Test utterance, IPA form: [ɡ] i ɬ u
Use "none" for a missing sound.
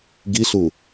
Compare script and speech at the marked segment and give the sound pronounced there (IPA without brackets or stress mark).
ɡ